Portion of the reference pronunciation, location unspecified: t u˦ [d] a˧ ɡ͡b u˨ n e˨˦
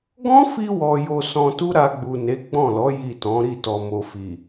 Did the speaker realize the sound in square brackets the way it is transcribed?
no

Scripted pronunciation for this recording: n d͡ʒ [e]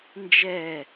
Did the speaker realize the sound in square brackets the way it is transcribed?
no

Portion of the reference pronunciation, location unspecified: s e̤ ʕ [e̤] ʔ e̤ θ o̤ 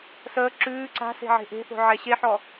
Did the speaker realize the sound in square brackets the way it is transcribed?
yes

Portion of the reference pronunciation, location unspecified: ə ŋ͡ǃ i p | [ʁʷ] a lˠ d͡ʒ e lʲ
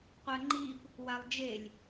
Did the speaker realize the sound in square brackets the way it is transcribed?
no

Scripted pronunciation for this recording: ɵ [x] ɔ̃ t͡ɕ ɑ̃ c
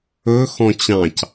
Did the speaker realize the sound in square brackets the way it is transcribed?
yes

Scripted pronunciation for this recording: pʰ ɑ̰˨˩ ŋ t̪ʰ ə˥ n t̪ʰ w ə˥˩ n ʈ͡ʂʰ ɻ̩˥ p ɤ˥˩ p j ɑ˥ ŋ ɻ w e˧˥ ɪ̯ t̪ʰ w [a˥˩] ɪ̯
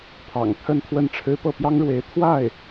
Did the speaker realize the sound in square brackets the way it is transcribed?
yes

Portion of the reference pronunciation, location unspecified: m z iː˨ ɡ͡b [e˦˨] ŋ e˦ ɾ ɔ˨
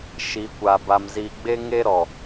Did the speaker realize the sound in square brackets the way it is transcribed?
no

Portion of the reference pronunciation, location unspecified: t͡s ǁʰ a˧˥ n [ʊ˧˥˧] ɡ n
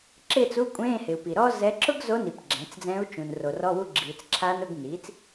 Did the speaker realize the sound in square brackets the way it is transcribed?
yes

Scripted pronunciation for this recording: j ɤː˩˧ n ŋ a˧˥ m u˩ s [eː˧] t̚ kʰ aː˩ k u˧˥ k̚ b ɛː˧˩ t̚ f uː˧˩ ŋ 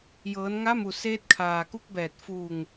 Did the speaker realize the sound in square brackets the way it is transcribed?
yes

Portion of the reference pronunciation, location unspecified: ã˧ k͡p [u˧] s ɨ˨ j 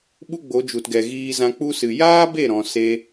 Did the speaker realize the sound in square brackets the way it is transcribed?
yes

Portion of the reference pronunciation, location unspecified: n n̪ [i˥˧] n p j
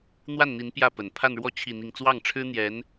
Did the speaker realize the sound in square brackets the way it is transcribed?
no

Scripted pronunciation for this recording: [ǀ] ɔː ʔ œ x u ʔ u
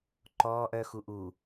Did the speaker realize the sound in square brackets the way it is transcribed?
no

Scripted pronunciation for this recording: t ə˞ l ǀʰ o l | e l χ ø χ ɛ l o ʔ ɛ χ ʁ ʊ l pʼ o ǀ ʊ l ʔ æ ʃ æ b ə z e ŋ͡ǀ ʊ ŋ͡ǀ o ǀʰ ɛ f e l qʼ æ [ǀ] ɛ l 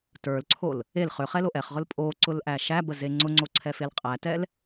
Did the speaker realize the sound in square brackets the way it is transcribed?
no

